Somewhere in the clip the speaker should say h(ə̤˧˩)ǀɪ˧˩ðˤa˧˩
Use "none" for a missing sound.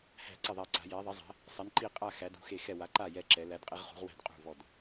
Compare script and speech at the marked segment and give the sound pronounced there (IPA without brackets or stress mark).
æ̤˧˩